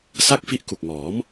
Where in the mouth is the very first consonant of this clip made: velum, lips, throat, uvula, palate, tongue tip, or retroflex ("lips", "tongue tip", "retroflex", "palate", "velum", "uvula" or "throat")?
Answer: tongue tip